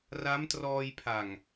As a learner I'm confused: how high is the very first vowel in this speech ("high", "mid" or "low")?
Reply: low